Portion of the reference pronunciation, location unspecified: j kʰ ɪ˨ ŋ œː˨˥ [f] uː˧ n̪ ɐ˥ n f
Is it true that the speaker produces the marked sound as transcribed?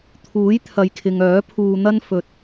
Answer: no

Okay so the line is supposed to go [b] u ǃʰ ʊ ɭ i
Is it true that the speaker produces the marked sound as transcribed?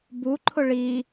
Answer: yes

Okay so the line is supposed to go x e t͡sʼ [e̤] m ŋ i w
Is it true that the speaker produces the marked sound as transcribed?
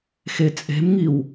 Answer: yes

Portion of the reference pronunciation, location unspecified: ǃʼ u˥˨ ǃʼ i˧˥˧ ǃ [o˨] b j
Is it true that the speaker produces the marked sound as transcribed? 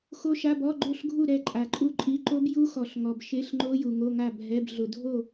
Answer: no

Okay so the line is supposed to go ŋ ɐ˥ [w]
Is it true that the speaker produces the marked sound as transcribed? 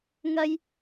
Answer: no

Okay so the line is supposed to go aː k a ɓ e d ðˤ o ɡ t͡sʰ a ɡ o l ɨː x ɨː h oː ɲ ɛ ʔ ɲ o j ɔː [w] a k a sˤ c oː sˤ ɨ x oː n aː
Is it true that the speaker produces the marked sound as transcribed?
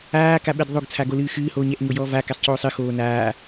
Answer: no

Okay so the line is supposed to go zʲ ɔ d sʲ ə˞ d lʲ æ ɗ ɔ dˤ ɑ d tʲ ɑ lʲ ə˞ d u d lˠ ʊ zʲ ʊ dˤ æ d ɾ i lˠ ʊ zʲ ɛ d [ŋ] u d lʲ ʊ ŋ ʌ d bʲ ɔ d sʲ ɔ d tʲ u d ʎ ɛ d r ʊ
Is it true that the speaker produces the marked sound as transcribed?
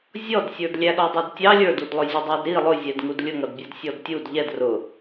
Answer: yes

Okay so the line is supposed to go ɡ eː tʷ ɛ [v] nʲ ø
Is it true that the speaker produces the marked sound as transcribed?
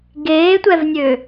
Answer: yes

